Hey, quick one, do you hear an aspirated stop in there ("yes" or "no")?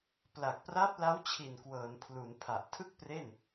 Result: yes